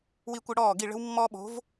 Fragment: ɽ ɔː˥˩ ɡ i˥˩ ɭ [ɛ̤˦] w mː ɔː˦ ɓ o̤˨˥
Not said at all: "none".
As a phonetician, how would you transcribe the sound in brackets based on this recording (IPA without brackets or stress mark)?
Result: ə̤˦